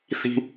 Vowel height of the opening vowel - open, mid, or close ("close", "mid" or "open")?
close